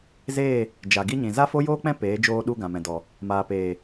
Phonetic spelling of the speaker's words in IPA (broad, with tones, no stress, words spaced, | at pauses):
zeː˦˨ | d͡ʒa˨ɡi˦ɲĩ˨ za˦fo˦joː˦k͡pɛ̃˦ peː˨˦d͡ʒoː˧ɗu˧ ɡã˨mɛ̃˨dɔ˨ | maː˨peː˨